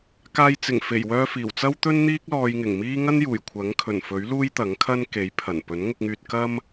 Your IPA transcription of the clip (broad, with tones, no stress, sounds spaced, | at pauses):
k aː˧ j t͡s ɪ˨˩ ŋ f e˨˩ j w œː˧ f iː˨˩ w t͡s ɐ˥ w t̪ ɵ˥ n n̪ iː˥ k̚ l ɔː˧ j ŋ ɪ˨˩ ŋ m iː˥ ŋ ɐ˥ n j uː˨˩ j kʷʰ ɐ˨˥ ŋ kʰ ɵ˨˩ n f ɵ˨˥ ɥ l uː˥ j t̪ ɐ˨˥ ŋ kʰ ɐ˥ n k e˨˥ j pʰ ɐ˨˩ n p ɵ˨˥ n ŋ ʊ˧ k̚ ŋ yː˧ t̚ k ɐ˥ m